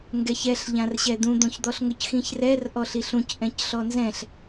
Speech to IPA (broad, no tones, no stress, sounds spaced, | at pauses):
ŋ ɡ ɛ ç ɛ ɬ ʎ ã r ɕ ɛ d̪ ũ d̪ õ ç d̪ ɔ ɬ ŋ ʊ c x ĩ ç r ɛ r ʔ ɔ ɬ i ɬ ũ c ʔ ɛ̃ c ɬ ɔ n z ɛ̃ ɬ